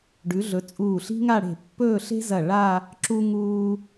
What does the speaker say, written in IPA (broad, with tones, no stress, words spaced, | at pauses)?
ɖʉ˩˧ɮɵ˩˧ t͡sʼuː˧˩ɬi̤˥ŋa˥˧ɽe̤˧˩ pːɵː˥˧ɬe̤˥zɐ˧˩ ɭa˥˧ | ǁu˧ ŋuː˧